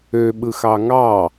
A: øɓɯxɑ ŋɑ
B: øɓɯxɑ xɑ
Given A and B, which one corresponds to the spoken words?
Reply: A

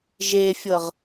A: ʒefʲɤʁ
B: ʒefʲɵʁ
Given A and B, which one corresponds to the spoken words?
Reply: A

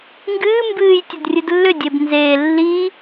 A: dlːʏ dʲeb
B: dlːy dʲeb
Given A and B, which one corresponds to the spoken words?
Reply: A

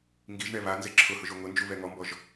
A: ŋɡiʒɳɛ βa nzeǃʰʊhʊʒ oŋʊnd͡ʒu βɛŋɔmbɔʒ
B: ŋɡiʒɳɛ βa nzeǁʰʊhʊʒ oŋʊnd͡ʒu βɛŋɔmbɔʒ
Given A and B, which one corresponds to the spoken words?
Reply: B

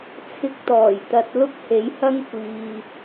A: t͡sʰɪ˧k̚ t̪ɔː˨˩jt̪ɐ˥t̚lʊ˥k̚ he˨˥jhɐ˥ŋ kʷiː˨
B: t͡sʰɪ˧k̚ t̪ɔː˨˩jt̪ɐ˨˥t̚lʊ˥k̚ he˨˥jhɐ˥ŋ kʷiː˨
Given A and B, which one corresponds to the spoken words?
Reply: B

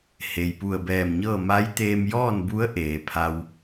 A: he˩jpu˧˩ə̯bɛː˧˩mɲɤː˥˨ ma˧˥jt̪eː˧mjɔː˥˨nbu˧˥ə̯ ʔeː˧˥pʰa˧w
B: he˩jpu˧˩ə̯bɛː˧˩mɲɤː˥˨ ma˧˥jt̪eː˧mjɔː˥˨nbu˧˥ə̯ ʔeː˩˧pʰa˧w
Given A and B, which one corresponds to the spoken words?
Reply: B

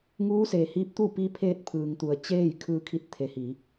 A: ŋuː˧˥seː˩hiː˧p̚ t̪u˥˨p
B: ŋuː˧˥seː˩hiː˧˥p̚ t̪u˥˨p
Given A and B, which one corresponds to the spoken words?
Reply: B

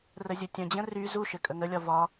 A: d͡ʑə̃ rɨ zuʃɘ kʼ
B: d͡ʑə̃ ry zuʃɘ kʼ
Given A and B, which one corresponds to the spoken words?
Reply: B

